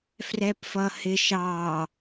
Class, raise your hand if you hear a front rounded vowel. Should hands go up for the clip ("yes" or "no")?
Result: no